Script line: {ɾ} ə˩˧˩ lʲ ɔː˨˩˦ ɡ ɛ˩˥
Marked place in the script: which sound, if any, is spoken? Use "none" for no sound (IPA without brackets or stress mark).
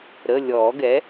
ɾ